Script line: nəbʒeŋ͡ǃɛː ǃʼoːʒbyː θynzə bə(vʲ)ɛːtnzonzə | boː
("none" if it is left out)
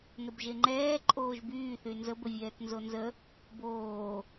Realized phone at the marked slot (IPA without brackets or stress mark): vʲ